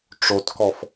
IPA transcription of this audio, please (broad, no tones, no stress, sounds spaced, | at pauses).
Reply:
ʈ͡ʂ o t k ɔ f